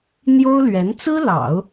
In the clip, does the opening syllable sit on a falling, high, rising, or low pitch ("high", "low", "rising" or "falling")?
high